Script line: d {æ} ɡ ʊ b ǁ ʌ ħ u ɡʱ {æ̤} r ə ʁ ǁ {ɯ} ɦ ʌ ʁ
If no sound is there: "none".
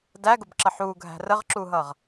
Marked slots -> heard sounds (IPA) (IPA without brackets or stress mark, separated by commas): æ, æ̤, u